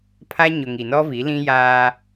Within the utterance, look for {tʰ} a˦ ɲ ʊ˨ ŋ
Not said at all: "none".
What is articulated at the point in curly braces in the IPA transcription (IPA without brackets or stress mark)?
pʰ